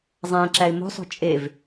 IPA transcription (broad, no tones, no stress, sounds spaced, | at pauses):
zˤ æ̃ ǁ æ ɪ̯ m o̤ sˤ o̤ t͡ʃʼ e v